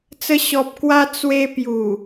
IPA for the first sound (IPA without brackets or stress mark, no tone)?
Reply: t͡s